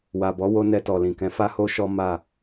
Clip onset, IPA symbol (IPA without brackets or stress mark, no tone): w